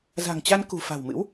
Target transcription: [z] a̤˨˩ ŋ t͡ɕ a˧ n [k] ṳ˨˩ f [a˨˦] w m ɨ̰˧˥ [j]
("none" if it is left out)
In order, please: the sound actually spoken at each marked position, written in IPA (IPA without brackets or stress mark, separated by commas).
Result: z, k, a̤˨˩, w